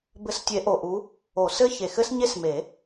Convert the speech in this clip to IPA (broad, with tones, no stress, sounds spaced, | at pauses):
b ɘ˨˦ s tʲ e˨˩˦ ʔ o˨˩ ʔ u˨˦ | o˨˩˦ s ɘ˦˥ ç e˨˩ x ɘ˦˥ s ɲ e˦˥ s m e˨˩˦